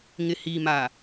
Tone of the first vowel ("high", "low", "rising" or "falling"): low